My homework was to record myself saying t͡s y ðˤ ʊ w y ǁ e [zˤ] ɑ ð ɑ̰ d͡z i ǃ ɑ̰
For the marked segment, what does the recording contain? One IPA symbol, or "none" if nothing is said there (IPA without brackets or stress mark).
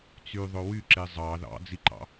zˤ